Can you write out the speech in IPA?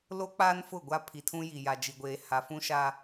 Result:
l o˦ k͡p a˦ n f ʊ˦˨ ɡʷ a˦ pʰ i˨ tʰ ũ˦ j i˨ j a˨ d͡ʒ i˨ ɡʷ eː˨ h a˨ f ũ˦ ʃ a˦

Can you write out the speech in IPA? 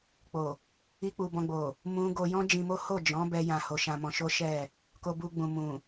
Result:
k͡p o˨ | i˦ k͡p u˧ b ɔ̃˧ ɡ͡b o˨ | m ũ˦ ɡ o˧ j ɔ̃˦ d͡ʒ ĩ˧ m o˦ h o˦˨ d͡ʒ ɔ̃˨˦ b ɛ˦ j ã˧ h o˧ ʃ ã˧ m ɔ̃˧ ʃ o˦ ʃ ɛ˦˨ | k o˧ b u˧ ɡ͡b ũ˨ m ũ˨

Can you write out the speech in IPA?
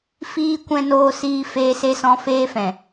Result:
f iː˦ kʷ ɛ̃˦ n oː˦ s iː˦ f eː˧ s e˧ s ɔ̃˧ f eː˦ f ɛ̃˨

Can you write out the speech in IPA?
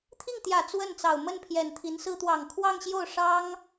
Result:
t̪ʰ i˥˩ ŋ t̪ j ä˨˩ t͡s w ə˥˩ n t͡s ɑ˨˩ ʊ̯ m ə˥˩ n pʰ j ɛ˨˩ n t̪ʰ i˧˥ n s ɹ̩˥ t̪ w ɑ˨˩ ŋ kʰ w ɑ˥˧ ŋ ɕ j o˥˩ ʊ̯ ʂ ɑ˥ ŋ

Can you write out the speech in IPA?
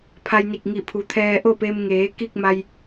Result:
pʰ a˧ j n i˧˩ k̚ ŋ i˧˩ pʰ u˩˧ t̪ʰ ɛː˧ ʔ o˥˨ p e˧ m ŋ eː˩˧ k i˥˨ k̚ m a˧ j

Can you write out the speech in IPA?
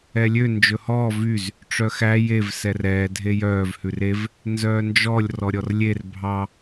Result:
ɛ lʲ ø n d͡ʒ ɵ h ɔː v y z | ʈ͡ʂ œ x æ j e v s ɛ r ɛː dʱ e j œː v h ʉ r e v | n z œː n d͡ʒ ɔ lʲ r ɔ ɾʲ ɔ r lʲ e r bʱ ɑ

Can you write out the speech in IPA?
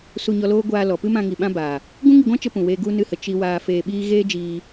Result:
s u˧ ɲ ɔ˧ l oː˦ ɡʷ aː˧ l ɔ˨ p ɨ˦ m ã˧ ŋ i˨ ɓ ã˦ b aː˨ | ɡ ũ˦ ŋ i˧ ɡʷ ã˦ t͡ʃ ə˦ p ũ˨ w eː˧ ɡ u˦ n ɨ˧ h ə˨ t͡ʃ i˧ w aː˧ f eː˧ ɓ iː˦ ɣ eː˦ d͡ʒ iː˧

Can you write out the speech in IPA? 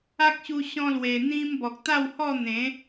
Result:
a˦ k̚ ɕ u˧ ɕ ɔ̃˧ l w e˨˩ n̪ ĩ˧ m b ɔ˨ k̚ t̪ a˥˧ w h ɔ˥˧ n̪ ẽ˨˦

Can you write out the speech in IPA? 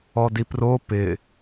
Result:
ɔ d i p r o p ɪ

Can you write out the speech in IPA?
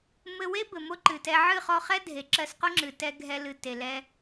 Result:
m ɘ˧ w e˦ b ɘ˨ m o˦ ǃ ɨ˨ t ɛ˧ ʕ ɨ˦˨ χ ɔ˧ χ ɛ˦ dʱ e˨ ǁ ɜ˧ s q o˦ ŋ͡ǁ ɨ˨ t ɛ˧ ɡʱ ɛ˧ l ɨ˨ t e˨ l ɛ˧

